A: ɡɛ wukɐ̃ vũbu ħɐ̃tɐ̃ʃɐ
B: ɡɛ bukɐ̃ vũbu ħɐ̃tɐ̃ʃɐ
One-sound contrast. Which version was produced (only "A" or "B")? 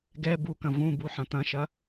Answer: B